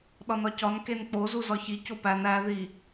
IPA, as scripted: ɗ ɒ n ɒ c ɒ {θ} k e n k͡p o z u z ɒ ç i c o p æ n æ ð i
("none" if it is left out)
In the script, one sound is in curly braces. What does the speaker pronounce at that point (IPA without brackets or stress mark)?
n